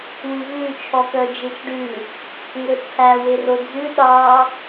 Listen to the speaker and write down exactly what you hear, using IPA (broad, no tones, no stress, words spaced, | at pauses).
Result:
wʉvʉ t͡ʃʰɔkœd͡ʒet͡ʃɖʉ | ŋɵt͡sʰæ werod͡zʉ ɗɑ